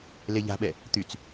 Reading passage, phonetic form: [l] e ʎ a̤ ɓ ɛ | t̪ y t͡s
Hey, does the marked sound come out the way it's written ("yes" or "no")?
yes